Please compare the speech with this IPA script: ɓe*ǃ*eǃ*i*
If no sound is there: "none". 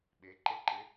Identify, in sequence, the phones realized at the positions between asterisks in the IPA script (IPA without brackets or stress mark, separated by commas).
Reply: ǃ, ɪ